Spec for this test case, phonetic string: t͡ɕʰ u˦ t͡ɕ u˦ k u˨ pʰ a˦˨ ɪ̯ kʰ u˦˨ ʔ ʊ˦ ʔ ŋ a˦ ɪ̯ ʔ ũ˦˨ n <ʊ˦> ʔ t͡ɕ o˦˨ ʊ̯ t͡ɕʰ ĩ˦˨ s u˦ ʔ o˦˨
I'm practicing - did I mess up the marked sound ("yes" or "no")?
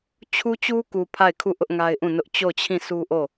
no